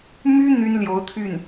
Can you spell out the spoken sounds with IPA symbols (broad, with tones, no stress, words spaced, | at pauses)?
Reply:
my˥ n̪y˥nljo˧˥ʊ̯ t̪ʰy˥˩n